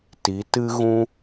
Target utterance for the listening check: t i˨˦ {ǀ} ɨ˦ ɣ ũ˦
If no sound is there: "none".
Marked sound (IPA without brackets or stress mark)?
t